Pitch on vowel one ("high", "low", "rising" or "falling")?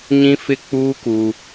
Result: high